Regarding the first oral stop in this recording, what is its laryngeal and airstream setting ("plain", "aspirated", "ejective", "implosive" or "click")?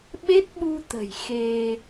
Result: implosive